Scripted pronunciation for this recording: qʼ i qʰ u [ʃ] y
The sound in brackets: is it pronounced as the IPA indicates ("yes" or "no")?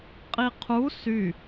no